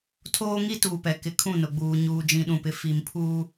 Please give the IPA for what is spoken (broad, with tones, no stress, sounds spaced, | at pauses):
tʰ oː˦ ŋ i˦ t uː˨ p ɛ˨ k ɪ˨ kʰ ũ˦˨ n ʊ˨ ɡ͡b uː˨ ɲ uː˨ d͡ʒ ĩ˨ ɗ ũ˨ p ɪ˨ f i˨ m pʰ uː˦